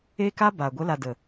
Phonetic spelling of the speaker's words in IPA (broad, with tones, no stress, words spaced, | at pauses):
e˦ka˦ ba˨ ɡʷə˨˦la˨ də˨